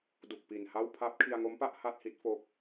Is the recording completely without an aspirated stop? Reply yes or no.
no